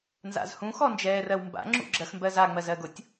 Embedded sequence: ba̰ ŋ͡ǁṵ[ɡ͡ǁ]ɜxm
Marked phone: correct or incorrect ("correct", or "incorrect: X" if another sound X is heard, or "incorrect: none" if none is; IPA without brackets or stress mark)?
correct